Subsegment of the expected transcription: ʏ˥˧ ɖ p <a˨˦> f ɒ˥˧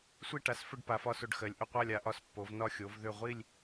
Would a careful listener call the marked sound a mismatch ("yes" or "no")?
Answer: no